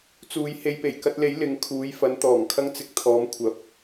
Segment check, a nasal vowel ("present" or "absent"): absent